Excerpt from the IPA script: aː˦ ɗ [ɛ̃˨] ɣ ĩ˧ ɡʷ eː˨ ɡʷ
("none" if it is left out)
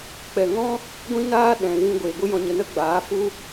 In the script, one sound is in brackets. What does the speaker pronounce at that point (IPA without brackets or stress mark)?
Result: ɛ̃˨